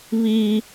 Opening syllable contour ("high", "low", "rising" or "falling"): high